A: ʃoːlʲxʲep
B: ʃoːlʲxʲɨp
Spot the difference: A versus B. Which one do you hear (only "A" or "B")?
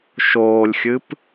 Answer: B